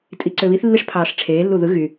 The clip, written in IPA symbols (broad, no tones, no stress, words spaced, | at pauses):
tʼiǀøβiθ lːiʂpʰɑːʂʈ͡ʂʰeː lːuðɯ ɣy